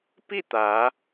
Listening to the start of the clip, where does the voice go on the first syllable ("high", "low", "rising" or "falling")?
falling